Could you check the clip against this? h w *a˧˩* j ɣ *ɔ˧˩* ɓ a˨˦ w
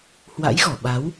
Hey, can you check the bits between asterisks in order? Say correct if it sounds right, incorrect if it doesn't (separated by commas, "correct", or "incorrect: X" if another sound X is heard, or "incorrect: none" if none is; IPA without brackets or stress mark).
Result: incorrect: a̰˧˥, correct